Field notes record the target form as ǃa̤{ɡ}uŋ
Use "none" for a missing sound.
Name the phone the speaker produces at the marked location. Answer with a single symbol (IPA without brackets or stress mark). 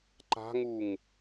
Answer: ŋ